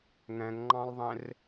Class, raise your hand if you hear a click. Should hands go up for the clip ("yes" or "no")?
yes